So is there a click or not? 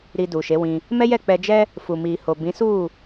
no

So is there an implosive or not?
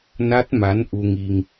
no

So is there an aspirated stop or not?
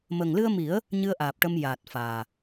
no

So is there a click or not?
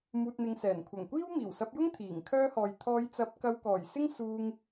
no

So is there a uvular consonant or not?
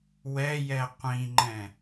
yes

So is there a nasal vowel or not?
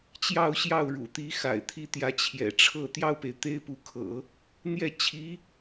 no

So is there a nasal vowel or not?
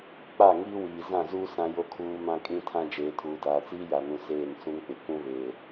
yes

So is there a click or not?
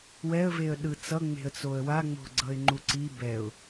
yes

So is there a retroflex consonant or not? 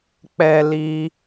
no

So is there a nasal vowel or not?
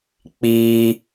no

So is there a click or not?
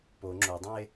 yes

